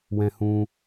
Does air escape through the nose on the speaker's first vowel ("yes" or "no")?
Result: yes